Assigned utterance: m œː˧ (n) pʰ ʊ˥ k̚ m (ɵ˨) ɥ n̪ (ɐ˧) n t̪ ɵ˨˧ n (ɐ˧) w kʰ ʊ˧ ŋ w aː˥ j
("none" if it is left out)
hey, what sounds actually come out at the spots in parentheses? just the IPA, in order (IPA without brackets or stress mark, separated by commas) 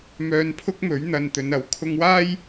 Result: n, ɵ˨˥, ɐ˧, ɐ˨˥